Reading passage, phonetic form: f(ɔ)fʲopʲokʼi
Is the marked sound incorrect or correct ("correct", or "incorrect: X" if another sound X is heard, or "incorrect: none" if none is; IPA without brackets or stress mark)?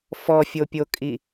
correct